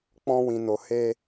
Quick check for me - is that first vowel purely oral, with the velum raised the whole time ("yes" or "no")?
no